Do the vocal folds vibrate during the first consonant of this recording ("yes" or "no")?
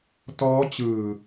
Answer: no